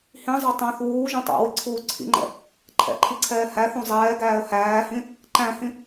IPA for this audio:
h ĩ zˤ æ tˤ æ̃ θ w uː ʒ ũ tˤ æ̰ w i ǀʰ uː ǀʰ ḭ ŋ͡ǃ ɛ̰ | ǃʰ ɛ̰ ǃʰ i ǀʰ ɛː h æ θ ũ zˤ ɛː ɡ æː ə̯ h æː h ĩ | ǃ æ̃ h ĩ

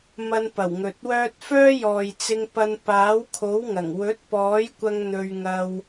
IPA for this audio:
m ɐ˧ n p ɐ˨˩ w ŋ ɵ˨ t̚ w œː˥ t̚ f œː˥ j ɔː˨ j t͡s ɪ˧ ŋ p ɐ˧ n p aː˨˥ w kʰ o˨˥ w ŋ ɐ˨˩ ŋ w ɵ˨˥ t̚ p ɔː˨˥ j kʷ ɐ˧ ŋ n̪ ɵ˧ ɥ ŋ ɐ˧ w

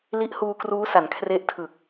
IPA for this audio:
l i˦˥ ʔ h uː˧ k r uː˦˥ s a˩˦ n kʰ r e˦˥ ʔ tʰ ɯ˨˩ k̚

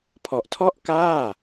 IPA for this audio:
pʰ ɔ˨˩ ʔ tʰ ɔ˥˩ ʔ k aː˥˩

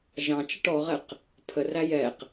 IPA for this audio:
ʒ ɑ̃ t͡ʃ ə ʈ ɔ ʁ ɛ q | pʰ ə r æ j ɛ q

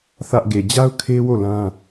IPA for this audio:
θ ä˦ ʔ ɡ e˨ d͡ʑ a˦ ʊ̯ kʰ e˦ w o˦˨ l ã˦

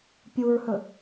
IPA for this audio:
pʲ u ɹ h ɵ

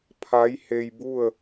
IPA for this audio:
pʰ a˧˥ j h e˧ j b u˥˨ ə̯

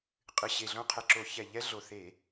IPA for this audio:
qʼ ɨ˨˩ ɕ e˨˩ ɮ õ˦ qʰ ɛ˨˩ ǁ o˧˩˧ ç ɛ˨˩ ʎ ɛ˦ ɮ o˨˩ θ e˧˩˧

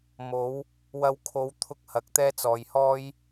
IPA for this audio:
m o˨˧ w | w ɐ˧ w kʰ o˨˧ w t̪ʰ ʊ˧ k̚ h ɐ˨˥ k̚ t̪ ɛː˥ t͡s ɔː˨ j h ɔː˥ j

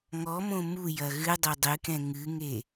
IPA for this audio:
ŋ ɔ m õ m u j ɐ ɣ ɨ dˤ e dˤ ɨ k ɛ̃ ŋ ɨ ŋ e

